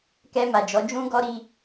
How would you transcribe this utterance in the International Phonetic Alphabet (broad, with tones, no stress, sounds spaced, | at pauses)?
k ɛ˧ m a˨ d͡ʒ ɔ˨˦ d͡ʒ ũ˦ ɡ ɔ˦ ɾ i˧